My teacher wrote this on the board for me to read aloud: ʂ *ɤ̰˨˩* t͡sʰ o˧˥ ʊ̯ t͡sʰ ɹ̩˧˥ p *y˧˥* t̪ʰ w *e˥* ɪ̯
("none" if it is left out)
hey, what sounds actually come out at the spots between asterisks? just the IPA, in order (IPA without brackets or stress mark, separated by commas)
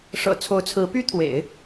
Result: ɤ̰˨˩, y˥, ḛ˨˩˦